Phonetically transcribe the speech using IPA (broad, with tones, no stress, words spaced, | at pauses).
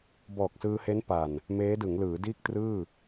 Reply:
bɔː˨˩k̚sɯː˧he˦˥n pa˨˩n | meː˦˥dɯ˩˦ŋlɯː˩˦ diː˥˩k̚trɯː˥˩